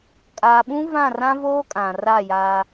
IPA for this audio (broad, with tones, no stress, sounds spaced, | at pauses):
kʼ a˨ ɓ ũ˦ v ã˦˨ r ã˦ v oː˦ kʼ ã˨ r a˦˨ j a˦